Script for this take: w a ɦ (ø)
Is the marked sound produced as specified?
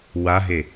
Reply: no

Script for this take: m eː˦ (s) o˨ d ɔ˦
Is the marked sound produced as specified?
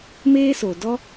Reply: yes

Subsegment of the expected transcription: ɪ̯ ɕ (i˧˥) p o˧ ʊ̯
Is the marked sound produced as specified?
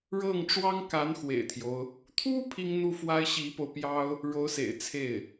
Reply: yes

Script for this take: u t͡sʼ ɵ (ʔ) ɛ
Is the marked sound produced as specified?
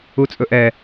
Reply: yes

